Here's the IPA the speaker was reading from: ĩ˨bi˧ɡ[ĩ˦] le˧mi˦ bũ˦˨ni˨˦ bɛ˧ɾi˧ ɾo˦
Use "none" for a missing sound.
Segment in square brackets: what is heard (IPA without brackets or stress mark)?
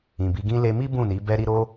ĩ˦